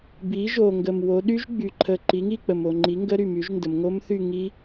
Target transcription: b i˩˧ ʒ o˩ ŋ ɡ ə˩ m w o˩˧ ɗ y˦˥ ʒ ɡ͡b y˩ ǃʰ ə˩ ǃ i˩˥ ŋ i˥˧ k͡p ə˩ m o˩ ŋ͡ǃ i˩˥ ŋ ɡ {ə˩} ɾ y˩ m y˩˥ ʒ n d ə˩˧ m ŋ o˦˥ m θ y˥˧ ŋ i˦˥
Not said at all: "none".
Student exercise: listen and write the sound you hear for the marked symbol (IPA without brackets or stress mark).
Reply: ə˦˥